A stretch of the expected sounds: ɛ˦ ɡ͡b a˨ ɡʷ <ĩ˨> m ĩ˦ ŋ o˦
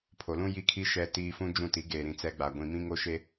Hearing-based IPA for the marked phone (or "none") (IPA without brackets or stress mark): ĩ˨